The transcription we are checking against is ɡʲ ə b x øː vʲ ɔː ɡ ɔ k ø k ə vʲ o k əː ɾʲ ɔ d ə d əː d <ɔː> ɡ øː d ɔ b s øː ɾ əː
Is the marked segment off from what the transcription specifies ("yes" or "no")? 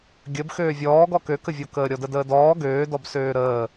no